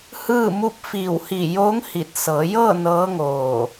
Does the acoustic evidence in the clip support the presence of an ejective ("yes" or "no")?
no